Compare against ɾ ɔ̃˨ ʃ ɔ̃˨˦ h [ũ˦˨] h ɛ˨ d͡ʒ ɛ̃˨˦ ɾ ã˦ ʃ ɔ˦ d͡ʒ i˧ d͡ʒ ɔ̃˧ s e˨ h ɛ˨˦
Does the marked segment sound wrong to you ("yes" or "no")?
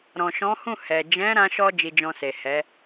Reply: no